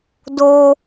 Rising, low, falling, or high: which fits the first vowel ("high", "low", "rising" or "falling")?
high